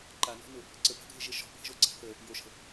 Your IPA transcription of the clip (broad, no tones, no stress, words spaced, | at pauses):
ǃanɔ̤nʊ | ǀəpa̤ɡʱɪʒɪ ʃɔ̤bʱə̤ʒoǀa̤ θə | joʃə̤